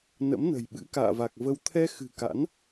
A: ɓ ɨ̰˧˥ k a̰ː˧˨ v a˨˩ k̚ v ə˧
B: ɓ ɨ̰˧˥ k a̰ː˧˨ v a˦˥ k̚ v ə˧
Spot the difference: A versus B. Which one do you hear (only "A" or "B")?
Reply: A